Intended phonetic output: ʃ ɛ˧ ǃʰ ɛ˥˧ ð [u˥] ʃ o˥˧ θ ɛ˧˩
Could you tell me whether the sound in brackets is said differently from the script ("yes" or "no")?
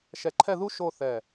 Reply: no